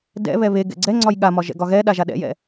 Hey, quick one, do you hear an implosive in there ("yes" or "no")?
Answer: yes